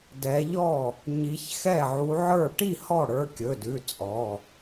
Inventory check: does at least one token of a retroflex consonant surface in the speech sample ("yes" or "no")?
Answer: yes